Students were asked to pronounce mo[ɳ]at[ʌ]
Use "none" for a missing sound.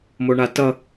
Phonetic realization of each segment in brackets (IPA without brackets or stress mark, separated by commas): ɳ, ʌ